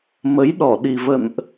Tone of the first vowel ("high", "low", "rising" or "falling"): rising